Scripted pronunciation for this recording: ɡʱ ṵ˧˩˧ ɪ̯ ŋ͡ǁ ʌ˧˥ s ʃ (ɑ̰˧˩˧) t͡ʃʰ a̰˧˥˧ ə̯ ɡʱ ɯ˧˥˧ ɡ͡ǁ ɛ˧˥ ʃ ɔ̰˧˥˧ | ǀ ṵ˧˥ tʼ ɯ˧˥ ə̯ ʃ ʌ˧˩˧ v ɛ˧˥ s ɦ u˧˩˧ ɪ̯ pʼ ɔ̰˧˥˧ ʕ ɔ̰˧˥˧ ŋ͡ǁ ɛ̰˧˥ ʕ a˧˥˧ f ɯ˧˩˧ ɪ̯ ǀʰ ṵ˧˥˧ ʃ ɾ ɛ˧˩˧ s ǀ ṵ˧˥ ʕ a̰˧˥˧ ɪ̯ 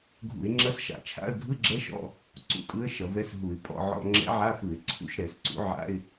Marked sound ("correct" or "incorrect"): incorrect